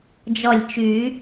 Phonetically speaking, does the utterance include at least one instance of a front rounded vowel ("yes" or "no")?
yes